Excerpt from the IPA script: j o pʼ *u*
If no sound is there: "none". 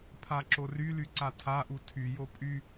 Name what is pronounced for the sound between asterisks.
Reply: y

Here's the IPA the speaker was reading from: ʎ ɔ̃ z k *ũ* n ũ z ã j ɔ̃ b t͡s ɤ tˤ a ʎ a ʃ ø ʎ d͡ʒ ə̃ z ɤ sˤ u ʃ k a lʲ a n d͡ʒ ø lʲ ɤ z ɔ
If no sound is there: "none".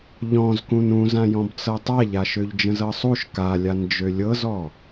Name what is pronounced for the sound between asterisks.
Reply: ũ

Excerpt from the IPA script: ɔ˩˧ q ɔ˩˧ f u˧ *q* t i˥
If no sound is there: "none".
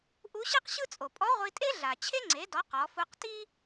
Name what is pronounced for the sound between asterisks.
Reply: q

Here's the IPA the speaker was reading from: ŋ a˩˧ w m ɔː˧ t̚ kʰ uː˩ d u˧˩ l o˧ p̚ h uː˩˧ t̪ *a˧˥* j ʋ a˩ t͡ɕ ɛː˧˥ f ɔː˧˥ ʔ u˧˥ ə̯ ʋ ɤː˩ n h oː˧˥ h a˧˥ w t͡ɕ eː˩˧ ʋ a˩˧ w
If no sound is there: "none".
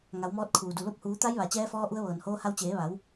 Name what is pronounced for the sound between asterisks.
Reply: a˧˥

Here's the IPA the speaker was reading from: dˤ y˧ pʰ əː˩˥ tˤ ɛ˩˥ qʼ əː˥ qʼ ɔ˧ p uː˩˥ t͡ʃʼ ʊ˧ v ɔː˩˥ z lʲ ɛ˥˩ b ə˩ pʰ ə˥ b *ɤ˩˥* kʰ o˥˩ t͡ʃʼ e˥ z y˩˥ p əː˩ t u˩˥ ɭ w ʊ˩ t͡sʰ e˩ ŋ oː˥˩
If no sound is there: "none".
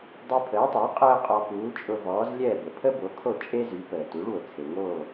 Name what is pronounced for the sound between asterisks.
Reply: o˩˥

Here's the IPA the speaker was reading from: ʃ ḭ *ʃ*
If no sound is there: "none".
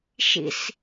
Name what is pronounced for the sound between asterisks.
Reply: s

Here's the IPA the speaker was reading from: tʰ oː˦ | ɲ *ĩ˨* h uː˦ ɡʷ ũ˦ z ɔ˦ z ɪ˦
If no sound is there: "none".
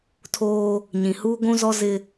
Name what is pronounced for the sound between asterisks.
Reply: ĩ˨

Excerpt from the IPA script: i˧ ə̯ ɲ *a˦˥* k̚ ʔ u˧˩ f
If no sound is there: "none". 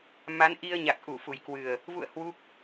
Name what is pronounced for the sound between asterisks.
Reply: a˨˩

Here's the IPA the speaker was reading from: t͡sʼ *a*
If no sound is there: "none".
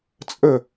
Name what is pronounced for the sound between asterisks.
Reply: ə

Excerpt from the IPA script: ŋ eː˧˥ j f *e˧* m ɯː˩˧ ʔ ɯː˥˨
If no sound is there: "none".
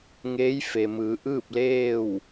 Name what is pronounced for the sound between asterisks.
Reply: e˩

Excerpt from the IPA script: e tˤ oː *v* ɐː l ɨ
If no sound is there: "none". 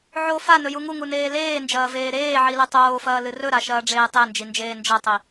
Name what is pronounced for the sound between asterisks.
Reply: f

